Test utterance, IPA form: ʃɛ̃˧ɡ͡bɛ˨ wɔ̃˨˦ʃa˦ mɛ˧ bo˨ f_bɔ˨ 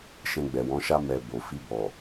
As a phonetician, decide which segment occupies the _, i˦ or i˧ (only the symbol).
i˧